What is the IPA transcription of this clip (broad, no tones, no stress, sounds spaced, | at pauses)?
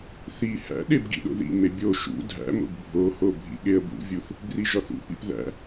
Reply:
θ i h æ̰ ɗ e b ɡ ḭ ɗ o̰ ð ḭ m e bʲ o ʃ ṵ dʱ æ̰ m o̰ ɡ bʱ o h o bʱ ḭ ɠ e ə̯ b ṵ vʲ u θ | b r i ʒ ɒ θ ṵ p ḭ p ð æ̰